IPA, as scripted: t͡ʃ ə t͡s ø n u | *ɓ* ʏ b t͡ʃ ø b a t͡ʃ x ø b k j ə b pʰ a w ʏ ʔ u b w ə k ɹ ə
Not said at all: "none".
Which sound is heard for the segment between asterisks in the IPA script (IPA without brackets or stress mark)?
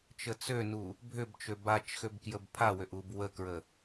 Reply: bʱ